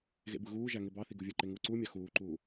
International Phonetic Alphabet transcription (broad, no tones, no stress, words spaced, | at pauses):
ɣḛbɯɣuːʒæ ŋebɑθi ɡuvʲɯǃe ŋuːǀuːmʲɑ xuːǃuː